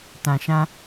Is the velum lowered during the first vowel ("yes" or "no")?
yes